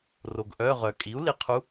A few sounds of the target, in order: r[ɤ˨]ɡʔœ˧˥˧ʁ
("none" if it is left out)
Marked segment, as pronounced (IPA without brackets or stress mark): o˨